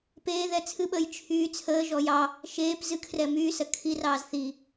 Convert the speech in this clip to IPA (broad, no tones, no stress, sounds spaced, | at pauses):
p eː ð ɛ t͡sʰ ɨ ɓ əː j t͡ʃʰ yː t͡sʰ əː ʒ ɔ j ɑ | ʃ eː p z ɨ kʰ r ɛ m yː s ɜ kʰ i r ɑː z θ i